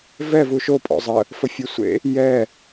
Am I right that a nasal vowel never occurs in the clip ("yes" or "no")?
yes